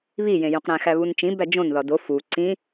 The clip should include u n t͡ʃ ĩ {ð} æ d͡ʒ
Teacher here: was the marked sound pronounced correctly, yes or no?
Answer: no